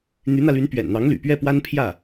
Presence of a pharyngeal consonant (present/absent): absent